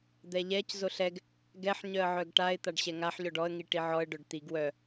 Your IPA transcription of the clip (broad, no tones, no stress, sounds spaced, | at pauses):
d̪ ɛ ʎ ɛ c z o ɬ ɛ ɡ | ɡ ɛ ħ ɲ œ ə̯ ʕ œ ɡ ʈ a ɪ̯ t̪ a ɖ ɕ ɛ ŋ a ħ ʎ ɔ ɖ ɔ ə̯ ŋ i ʈ i ʕ ɔ ə̯ ɖ œ ɖ t̪ i ɡ w œ